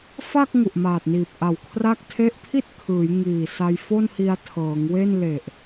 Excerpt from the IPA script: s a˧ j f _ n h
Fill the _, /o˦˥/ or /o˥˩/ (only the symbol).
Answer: o˥˩